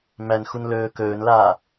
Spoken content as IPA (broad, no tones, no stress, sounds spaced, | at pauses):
m æ n x u n l ɵː k ɵː n l aː